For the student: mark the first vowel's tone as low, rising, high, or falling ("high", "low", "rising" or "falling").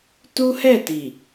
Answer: high